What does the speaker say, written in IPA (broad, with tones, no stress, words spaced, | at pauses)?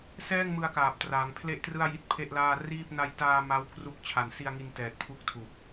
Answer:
sɛː˥˩ŋmɯ˧a̯kaː˨˩p̚ traː˩˦ŋpʰle˥˩ʔtrɯ˥˩a̯ji˦˥t̚ pʰe˥˩ʔlaː˥˩ riː˥˩p̚ na˧jtaː˧ ma˦˥wkʰru˦˥k̚ t͡ɕʰa˨˩nsi˧a̯ŋi˧ntɛː˨˩t̚ pʰu˥˩k̚tʰu˨˩k̚